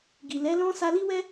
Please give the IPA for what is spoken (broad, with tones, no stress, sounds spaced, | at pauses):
ɡ i˨ l ɛ˨˦ l ɔ̃˦ s a˧ l i˦ w ɛ˦